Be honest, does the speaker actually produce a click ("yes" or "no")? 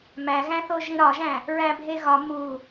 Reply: no